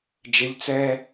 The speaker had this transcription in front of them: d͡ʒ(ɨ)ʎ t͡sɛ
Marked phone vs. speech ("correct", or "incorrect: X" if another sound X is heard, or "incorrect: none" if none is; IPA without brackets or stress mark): incorrect: ɪ